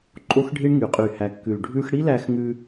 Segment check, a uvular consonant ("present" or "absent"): present